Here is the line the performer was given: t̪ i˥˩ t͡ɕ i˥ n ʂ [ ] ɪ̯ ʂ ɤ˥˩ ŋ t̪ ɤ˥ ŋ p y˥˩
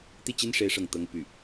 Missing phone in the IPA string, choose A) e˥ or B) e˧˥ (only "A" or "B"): A